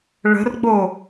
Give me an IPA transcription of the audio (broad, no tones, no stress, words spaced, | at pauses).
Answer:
ɭə̤rɡ͡bo